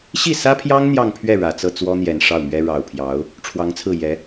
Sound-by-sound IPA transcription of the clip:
ɕi˥˩sä˥pʰjɑ˥ŋ n̪jɑ˥˧ŋpʰɥɛ˥˩ ɻä˨˩t͡sɤ˥˩t͡swɔ˥n̪jɛ˨˩n ʂɑ˥˩ʊ̯mɥɛ˥ ɻɑ˨˩ʊ̯pʰjɑ˧˥ʊ̯ | ʈ͡ʂʰwɑ˧˥ŋt͡sʰɹ̩˥˩ jɛ˧˥

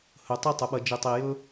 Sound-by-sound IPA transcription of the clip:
hɵ˩tˤe˥ tˤɵ˩ɓɐ˨d͡ʒɨ˩ tˤi˩ jɵ˥

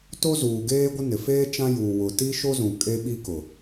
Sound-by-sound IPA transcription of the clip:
to˦zuː˨ɡeː˦ɡʷɪ˦ nɪ˨feː˦ t͡ʃã˦juː˨ wʊ˨ti˦ʃo˦zũ˨ kʼe˦ɓi˦kʊ˨

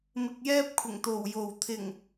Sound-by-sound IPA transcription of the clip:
mɪ˧k̚jɛː˥p̚ kʷʰɪ˨˩ŋ t̪o˨˩wjo˨˩w t̪ʰɪ˨˩ŋ

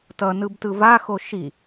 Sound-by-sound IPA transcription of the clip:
tʌnɯb tɯvaxo ʃi

